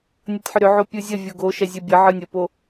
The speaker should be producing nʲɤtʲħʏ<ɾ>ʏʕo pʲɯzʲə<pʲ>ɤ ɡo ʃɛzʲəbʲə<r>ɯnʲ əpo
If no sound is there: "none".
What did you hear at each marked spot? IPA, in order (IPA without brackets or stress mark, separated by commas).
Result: ɾ, vʲ, ʕ